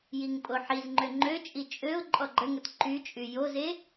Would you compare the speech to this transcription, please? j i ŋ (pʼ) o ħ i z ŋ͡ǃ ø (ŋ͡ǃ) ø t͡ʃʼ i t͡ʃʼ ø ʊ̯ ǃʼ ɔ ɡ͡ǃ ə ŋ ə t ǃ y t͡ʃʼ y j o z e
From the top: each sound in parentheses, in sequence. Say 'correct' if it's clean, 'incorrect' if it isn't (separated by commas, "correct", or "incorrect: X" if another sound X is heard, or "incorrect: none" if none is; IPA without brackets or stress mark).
correct, correct